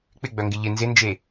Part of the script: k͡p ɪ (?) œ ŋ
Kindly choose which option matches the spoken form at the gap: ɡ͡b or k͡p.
ɡ͡b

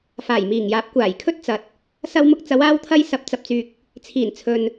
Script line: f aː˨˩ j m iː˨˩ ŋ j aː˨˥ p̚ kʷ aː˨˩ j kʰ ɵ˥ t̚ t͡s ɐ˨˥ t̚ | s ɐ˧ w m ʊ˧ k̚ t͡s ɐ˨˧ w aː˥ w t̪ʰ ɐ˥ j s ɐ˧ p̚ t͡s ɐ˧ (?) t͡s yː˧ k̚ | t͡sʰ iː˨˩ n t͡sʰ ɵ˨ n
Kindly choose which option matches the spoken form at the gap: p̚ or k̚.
p̚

